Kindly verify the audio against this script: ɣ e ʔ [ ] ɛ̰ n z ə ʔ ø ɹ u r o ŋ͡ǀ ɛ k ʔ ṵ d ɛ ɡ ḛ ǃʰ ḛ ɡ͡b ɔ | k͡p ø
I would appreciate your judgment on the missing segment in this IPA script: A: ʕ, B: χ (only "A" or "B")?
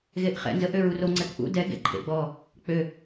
B